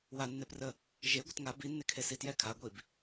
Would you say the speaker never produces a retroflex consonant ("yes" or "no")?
yes